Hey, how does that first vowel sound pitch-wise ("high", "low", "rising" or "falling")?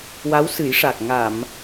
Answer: rising